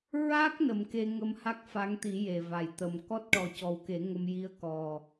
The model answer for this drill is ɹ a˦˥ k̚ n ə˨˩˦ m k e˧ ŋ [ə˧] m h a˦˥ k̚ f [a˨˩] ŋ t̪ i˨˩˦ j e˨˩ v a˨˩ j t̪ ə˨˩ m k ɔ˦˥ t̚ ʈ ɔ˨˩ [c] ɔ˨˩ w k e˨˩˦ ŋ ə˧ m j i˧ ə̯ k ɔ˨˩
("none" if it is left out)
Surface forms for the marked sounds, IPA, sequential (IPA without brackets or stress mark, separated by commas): ə˧, a˧˥, c